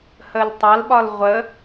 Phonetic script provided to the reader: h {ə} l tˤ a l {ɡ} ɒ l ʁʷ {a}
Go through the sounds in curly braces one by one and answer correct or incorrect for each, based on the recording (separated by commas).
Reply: correct, incorrect, incorrect